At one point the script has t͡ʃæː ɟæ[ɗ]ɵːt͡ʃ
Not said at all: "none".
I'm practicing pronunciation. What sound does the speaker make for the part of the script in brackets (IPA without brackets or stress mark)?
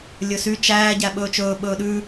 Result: ɓ